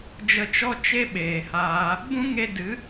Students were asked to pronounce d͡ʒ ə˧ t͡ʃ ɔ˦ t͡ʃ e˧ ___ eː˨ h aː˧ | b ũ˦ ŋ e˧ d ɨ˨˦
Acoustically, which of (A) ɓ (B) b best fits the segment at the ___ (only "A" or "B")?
A